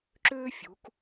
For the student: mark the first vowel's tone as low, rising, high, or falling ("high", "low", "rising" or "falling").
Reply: high